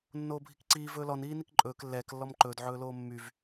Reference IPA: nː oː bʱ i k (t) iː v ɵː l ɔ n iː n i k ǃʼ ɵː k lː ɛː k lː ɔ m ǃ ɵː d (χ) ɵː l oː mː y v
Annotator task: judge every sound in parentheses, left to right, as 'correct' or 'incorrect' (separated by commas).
incorrect, incorrect